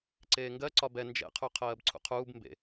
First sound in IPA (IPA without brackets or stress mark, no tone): ǀ